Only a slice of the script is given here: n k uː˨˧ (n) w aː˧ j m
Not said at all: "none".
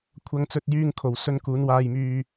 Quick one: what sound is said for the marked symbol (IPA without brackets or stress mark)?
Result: n